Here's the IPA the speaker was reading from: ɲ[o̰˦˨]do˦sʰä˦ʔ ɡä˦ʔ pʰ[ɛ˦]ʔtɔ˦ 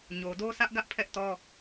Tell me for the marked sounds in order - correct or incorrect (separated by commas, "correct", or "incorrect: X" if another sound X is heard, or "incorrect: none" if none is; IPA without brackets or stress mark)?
incorrect: o˨, correct